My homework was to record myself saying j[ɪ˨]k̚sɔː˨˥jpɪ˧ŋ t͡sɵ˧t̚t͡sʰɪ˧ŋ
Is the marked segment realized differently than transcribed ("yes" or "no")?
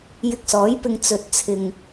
yes